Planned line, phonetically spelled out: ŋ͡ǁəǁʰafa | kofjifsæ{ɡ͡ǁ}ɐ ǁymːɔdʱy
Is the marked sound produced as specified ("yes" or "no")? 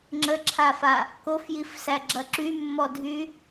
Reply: yes